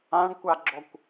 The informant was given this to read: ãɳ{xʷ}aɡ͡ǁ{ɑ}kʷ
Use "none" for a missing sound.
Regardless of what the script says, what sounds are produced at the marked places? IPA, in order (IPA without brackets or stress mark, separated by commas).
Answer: kʷ, ɔ